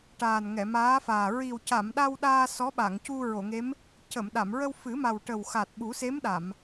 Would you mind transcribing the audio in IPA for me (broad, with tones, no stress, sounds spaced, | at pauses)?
ʈ aː˨˩ n ŋ ɛ˨˩˨ m aː˧˥ f aː˨˩ ɹ i˨˩ w c a˨˩˨ m ɗ a˧ w ɗ aː˧ s ɔ˧˥ ɓ a˨˩˨ ŋ c u˧ ɹ o˨˩˨ ŋ e˧˥ m | c ə˨˩˨ m ɗ a˨˩˨ m ɹ ə˧ w f ɨ˨˩˦ m a˨˩ w ʈ ə˨˩ w x a˨˩ t̚ ɓ u˨˩˦ s e˧˥ m ɗ a˨˩˨ m